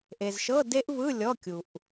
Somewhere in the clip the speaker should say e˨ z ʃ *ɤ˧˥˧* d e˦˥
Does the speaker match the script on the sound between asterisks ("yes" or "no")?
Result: yes